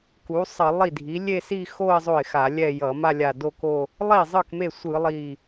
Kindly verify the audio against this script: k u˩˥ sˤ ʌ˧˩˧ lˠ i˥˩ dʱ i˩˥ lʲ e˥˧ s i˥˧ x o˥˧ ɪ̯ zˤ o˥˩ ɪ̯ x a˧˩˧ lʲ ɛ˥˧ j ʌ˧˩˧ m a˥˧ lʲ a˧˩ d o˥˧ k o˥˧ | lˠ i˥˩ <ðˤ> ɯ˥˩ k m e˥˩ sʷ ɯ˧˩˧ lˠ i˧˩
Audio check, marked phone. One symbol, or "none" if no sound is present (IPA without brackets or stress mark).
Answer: zˤ